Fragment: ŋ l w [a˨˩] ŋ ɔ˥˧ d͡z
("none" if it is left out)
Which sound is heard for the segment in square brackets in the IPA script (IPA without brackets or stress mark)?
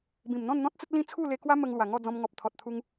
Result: a˨˩